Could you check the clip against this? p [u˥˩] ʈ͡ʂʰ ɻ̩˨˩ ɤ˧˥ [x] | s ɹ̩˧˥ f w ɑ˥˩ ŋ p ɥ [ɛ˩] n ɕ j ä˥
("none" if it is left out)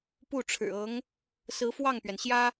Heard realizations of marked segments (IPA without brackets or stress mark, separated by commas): u˥˩, ŋ, ɛ˩